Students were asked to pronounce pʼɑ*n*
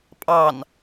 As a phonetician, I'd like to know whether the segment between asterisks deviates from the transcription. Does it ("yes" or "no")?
no